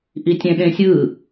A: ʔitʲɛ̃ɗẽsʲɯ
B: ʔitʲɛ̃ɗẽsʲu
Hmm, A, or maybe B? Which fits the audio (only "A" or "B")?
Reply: A